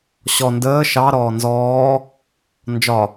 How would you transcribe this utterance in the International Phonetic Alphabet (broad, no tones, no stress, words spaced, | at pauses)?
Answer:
ɕɔ ndəː ʃɑ ɾɔːnzɔː | nd͡ʒɒ